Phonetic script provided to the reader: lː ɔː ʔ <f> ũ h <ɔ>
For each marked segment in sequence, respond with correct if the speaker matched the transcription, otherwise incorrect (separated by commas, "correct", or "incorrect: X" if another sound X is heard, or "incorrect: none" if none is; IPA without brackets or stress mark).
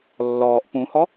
incorrect: p, correct